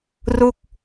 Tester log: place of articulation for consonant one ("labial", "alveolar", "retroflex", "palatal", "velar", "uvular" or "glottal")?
alveolar